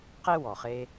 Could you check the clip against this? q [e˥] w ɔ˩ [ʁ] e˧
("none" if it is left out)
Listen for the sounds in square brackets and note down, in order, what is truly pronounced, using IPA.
e˥, χ

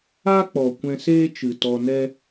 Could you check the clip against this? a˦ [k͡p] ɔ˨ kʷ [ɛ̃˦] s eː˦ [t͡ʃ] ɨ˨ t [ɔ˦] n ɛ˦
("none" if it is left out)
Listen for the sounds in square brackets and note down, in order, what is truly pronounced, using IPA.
k͡p, ɛ̃˧, t͡ʃ, ɔ˧

